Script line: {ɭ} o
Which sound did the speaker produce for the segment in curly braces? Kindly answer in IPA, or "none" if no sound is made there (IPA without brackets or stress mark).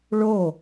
ɭ